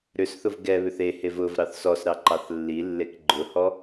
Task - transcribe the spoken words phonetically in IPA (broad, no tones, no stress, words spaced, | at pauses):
ɾʏsθʊv ɡɛ βʏθehev ʊv ɾɑθsɔsɾɑ ǃɑθlːilːek ɡ͡ǃʊhɔ